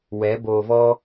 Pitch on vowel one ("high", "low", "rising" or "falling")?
rising